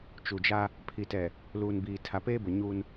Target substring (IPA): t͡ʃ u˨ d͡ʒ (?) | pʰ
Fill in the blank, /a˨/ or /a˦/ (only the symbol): a˦